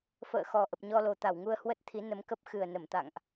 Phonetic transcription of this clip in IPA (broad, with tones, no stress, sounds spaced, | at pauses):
f ə̰ː˧˨ x ɔ˨˩ ʔ ə˨˩ p̚ ɲ ɔ˧ l o˨˩ t̪ a˧˩ w ŋ u˧ ə̯ h w ə˦˥ t̚ t̪ʰ i˨˦ n ə˨˦ m k ə˦˥ p̚ x ɨ˨˩ ə̯ n ə˧˩ m t̪ a̰˧˨ ŋ ʔ